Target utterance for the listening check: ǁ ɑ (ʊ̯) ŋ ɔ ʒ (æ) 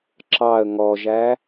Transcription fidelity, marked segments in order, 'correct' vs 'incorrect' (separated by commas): incorrect, correct